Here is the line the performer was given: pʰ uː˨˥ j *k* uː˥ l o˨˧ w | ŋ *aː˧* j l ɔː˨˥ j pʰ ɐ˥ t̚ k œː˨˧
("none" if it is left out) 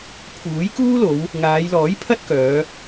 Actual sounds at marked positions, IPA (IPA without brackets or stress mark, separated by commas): k, aː˨˧